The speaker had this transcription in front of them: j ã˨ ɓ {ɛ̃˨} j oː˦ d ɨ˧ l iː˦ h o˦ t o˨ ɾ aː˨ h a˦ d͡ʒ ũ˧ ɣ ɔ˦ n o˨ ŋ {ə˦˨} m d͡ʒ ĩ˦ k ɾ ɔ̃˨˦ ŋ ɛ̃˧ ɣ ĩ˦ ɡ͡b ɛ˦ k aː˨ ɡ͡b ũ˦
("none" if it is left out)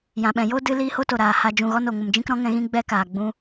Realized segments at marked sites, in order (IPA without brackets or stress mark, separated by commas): ɛ̃˨, ə˧